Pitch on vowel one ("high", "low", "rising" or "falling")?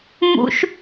high